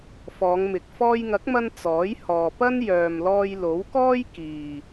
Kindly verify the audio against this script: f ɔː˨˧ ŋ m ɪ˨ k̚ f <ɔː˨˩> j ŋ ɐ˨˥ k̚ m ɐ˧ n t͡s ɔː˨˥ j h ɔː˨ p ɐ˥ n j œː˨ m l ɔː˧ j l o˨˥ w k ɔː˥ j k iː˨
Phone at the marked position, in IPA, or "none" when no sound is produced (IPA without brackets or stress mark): ɔː˧